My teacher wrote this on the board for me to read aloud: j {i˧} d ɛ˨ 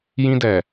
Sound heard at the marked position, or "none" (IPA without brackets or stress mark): ĩ˧